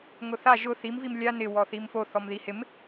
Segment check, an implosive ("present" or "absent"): absent